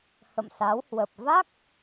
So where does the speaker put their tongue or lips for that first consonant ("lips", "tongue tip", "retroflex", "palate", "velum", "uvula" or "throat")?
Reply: throat